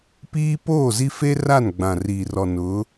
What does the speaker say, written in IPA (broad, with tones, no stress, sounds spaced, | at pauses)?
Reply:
p iː˦ p oː˦˨ z i˦ f e˦ r a˦˨ n ɡ͡b ã˨ r iː˨ r ɔ˨ n ʊ˨˦